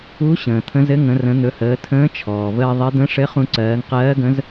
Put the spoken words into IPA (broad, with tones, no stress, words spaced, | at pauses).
u˧˥ ɕə̃ː˩t̪ʰə̃˧˥zɘ˧˥ ŋə̃˩˧rə̃˩˧n̪ɵ˩˧həː˩˧ tʰə̃ː˧˥t͡ʃʰɔː˩vəː˧ ðˤɘ˧˥ d̪ə̃˧˥ʂɘ˧˥χũ˧ ǀɜː˩˧ŋqɜː˧˥ɡə̃˧˥z